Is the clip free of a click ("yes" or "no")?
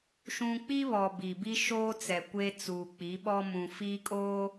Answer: yes